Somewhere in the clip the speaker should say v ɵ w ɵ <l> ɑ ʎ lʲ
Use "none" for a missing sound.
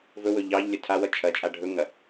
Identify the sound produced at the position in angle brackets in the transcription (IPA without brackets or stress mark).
ʎ